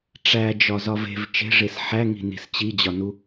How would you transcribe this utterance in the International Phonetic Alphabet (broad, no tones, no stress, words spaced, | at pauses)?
ʈ͡ʂæd͡ʒɒzɒv e̤v t͡ʃe̤ʐes ħæŋi̤ni̤s t͡ɕid͡ʑɒnu